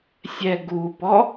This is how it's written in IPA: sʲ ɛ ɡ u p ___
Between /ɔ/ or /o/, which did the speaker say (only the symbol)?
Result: ɔ